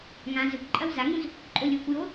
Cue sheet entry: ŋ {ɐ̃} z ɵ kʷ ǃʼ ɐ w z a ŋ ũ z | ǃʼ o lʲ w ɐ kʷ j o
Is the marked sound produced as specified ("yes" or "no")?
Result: no